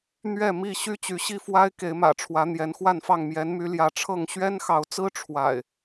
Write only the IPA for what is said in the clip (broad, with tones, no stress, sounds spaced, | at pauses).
n̪ ɥ ɛ˥˨ m i˥˨ ɕ y˦ t͡ɕ y˨˦ ɕ i˥˨ f w a˦ ɪ̯ k e˨˦ ɪ̯ m ä̰˨˩ ʈ͡ʂʰ w ä˨˦ n̪ j ɛ˨˦ n x w a˥˨ n f ɑ˥˨ ŋ m j ɛ˨˦ n m y˨˦ l j ä˨˦ ʈ͡ʂʰ ɤ˥˨ ŋ ɕ ɥ ɛ˦ n x ɑ˨˦ ʊ̯ t͡s ɹ̩˦ ʈ͡ʂʰ w a̰˨˩ ɪ̯